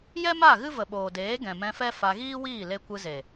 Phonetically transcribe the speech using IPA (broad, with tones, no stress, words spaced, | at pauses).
jɛ˦ma˦˨ ɣɨ˦və˨ɓoː˨deː˨˦ ɡɛ̃˨mɛ̃˧fɛ˦ fa˧ ɣiː˦wiː˦˨ le˧ kʷɨ˧ze˨